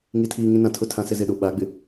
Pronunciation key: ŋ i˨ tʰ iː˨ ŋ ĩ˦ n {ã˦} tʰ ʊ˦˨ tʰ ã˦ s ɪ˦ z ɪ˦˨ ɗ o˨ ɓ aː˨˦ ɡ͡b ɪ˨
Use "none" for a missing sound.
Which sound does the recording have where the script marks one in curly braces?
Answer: ã˨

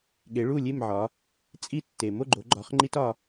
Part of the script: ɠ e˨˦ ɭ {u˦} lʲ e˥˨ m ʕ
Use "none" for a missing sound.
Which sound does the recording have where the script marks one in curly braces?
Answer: u˥˨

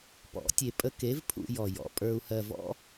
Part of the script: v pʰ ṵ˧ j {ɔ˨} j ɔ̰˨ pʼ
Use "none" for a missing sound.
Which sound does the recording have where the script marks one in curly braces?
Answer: ɔ˨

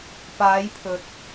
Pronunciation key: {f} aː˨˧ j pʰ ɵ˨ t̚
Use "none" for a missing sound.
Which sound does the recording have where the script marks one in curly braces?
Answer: p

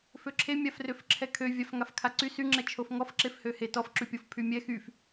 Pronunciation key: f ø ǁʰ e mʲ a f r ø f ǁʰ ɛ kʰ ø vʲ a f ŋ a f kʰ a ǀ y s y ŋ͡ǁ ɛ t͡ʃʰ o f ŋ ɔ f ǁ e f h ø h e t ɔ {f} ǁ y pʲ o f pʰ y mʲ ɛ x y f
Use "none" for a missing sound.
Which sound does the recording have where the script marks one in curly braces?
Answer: f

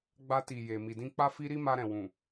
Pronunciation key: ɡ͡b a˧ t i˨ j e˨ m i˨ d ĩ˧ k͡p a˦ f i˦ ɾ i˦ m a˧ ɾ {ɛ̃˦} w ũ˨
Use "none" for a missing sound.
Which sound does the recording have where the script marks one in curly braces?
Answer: ɛ̃˨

